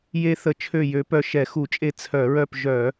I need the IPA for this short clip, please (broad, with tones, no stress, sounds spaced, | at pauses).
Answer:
j e˦ θ ə˧˩˧ t͡ʃʰ ø˦˨ j ø˨˦ p œ˦˨ ʃ ɛ˧˩˧ x u˧˩˧ t͡ʃʼ e˦˨ t͡sʰ œ˧˩˧ ɹ œ˦˨ p ʒ œ˧˩˧